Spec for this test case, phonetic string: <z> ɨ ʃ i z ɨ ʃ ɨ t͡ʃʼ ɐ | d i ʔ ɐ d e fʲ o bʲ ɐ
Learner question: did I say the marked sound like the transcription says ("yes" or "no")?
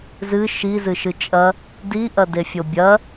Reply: yes